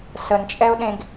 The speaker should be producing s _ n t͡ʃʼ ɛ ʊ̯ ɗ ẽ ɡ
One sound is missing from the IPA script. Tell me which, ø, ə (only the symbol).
ə